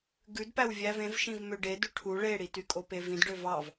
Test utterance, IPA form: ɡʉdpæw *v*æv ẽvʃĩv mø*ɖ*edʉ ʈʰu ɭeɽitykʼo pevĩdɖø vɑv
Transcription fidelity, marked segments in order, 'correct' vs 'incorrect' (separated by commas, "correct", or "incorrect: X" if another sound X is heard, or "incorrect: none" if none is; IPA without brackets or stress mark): incorrect: vʲ, correct